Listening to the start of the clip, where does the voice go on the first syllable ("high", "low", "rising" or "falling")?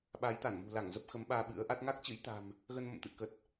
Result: rising